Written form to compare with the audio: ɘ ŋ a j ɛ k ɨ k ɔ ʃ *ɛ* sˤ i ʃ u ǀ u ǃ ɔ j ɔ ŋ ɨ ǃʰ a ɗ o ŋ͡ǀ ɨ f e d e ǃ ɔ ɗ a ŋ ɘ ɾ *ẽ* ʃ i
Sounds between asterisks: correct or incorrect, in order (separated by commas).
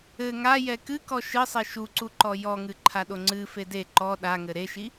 incorrect, incorrect